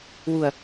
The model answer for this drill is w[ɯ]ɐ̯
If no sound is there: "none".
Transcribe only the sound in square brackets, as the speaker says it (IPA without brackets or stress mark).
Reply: u